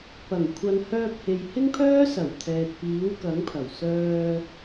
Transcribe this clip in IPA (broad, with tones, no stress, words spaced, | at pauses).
pɐ˨˩ŋ kʷʰɐ˨˧nhœː˧p̚he˨j hɪ˥ŋpʰœː˥sɐ˨˩w t̪ʰɛː˨t̚piː˨˥wkɐ˨˥ŋpʰɐ˨˩w sœː˧